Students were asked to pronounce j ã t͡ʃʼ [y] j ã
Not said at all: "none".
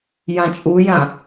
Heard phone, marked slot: u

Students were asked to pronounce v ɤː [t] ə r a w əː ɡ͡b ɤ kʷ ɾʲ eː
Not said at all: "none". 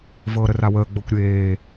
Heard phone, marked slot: ɾ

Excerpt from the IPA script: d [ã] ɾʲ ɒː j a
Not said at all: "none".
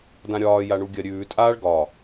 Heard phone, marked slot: ã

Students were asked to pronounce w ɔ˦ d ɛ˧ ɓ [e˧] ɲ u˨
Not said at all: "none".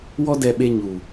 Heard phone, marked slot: e˧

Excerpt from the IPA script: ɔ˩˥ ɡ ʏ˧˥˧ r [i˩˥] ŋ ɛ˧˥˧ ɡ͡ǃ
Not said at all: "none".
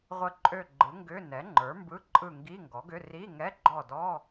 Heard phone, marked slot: i˧˥˧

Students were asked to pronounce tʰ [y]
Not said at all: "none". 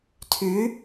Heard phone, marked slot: y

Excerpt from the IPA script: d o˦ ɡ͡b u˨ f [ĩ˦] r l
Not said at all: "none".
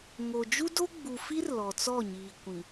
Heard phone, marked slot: i˦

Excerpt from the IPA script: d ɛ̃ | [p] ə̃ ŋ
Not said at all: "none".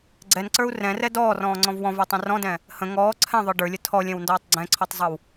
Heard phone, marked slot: h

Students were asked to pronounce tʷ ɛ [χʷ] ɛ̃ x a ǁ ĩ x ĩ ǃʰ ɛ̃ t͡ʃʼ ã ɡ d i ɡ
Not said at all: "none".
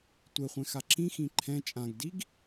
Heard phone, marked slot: χʷ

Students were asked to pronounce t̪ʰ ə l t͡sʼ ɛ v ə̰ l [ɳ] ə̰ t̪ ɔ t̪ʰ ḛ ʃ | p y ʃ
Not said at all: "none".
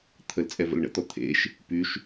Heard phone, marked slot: ɳ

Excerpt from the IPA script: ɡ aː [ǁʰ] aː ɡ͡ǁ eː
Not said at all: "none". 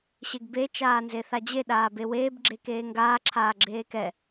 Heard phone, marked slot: ǁʰ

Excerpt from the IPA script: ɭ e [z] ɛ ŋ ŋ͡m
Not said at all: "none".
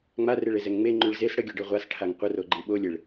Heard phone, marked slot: z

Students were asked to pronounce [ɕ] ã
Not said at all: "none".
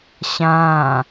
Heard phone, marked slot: ɕ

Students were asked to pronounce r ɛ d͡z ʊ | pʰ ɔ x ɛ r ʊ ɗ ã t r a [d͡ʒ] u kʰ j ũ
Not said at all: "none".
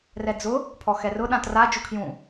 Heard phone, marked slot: d͡ʒ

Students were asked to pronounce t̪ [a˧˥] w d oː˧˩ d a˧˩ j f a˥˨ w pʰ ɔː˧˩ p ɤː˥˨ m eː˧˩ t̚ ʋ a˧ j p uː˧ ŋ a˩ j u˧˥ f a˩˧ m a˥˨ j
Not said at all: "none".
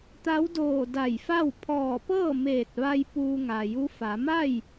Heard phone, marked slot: a˧˥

